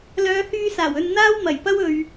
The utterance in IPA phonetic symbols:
l œː˨˧ h yː˧ s aː˨˩ w ɵ˧ n n̪ aː˥ w m ɐ˨˩ j p ɐ˥ w ɵ˨ ɥ

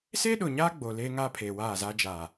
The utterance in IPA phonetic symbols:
s eː˦ ɗ ʊ˨ ɲ aː˦ ɡ͡b oː˨ l eː˦ ŋ aː˦ pʰ eː˨ w aː˦˨ z aː˦ d͡ʒ aː˨

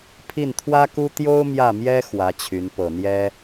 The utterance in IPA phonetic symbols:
pʰ i˥˩ n t̪ʰ w ä˥ k u˥ t̪ j o˥ ʊ̯ m j ä˥˩ m j ɛ˥ x w ä˧˥ t͡ɕʰ y˧˥ n p ɤ˨˩ n̪ j ɛ˥

